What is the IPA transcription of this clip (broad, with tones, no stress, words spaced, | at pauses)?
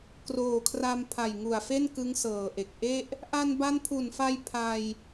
kroː˨˩kʰra˧m pʰa˨˩jŋu˨˩a̯fe˥˩n kɯ˦˥ŋsɤː˨˩ʔe˨˩k̚ ʔe˥˩ʔ | ʔa˧nba˦˥npʰu˨˩nfa˧j pʰa˧j